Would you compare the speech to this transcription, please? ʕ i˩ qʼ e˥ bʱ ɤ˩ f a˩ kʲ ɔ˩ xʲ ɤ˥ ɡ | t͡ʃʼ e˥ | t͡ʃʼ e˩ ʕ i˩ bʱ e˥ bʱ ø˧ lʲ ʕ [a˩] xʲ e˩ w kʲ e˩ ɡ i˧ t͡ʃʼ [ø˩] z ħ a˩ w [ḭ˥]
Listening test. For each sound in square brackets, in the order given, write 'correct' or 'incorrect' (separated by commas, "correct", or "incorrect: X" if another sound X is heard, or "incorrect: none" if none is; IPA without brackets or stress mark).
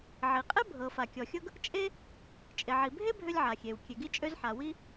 correct, incorrect: ø˧, incorrect: i˥